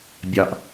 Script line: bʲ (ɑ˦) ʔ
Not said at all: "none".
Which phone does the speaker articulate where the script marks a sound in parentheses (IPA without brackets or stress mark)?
ɑ˨